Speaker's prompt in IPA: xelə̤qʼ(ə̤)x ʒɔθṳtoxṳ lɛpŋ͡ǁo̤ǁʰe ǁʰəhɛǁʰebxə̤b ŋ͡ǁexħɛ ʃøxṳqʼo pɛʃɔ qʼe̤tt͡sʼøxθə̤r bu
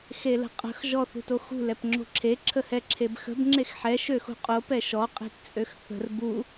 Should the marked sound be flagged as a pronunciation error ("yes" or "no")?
no